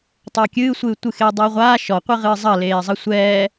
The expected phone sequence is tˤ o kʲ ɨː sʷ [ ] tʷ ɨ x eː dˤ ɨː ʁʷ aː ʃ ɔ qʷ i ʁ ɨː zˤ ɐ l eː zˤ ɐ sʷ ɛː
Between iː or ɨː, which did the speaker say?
ɨː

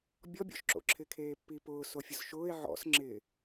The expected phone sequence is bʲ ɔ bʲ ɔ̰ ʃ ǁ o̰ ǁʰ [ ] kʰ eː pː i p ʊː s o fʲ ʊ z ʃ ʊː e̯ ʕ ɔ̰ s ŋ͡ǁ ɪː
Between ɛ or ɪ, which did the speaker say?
ɪ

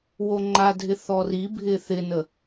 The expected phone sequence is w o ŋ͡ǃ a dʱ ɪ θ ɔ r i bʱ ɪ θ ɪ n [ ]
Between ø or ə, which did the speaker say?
ə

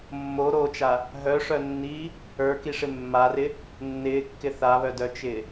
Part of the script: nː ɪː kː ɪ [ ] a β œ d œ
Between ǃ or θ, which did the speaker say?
θ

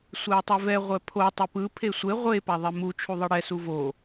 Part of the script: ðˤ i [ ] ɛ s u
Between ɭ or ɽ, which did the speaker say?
ɽ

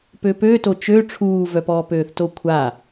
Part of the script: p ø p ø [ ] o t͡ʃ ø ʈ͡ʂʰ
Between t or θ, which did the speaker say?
t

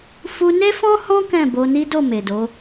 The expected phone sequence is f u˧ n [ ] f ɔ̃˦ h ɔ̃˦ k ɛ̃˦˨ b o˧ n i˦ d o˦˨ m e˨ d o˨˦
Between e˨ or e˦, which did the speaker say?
e˦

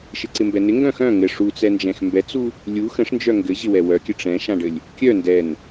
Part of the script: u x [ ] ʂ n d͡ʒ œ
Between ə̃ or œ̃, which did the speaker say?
ə̃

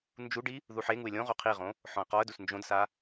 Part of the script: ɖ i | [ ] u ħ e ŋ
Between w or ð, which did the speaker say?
ð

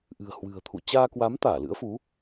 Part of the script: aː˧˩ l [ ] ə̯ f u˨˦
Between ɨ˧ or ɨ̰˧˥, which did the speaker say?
ɨ̰˧˥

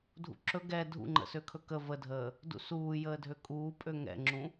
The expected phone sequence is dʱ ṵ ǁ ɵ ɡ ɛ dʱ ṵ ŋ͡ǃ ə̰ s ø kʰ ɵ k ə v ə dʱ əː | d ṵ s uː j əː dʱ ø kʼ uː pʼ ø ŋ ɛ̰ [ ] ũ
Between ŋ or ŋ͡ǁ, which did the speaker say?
ŋ͡ǁ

